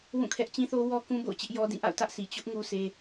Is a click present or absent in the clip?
absent